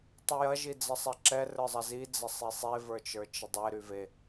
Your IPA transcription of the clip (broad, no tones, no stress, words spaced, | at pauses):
tˤyjɐ ʒid͡zɐsˤɛǁɛ rə˞zˤɐzi d͡zɐsˤisˤe və˞t͡ʃə˞t͡ʃɪdˤe ɾyve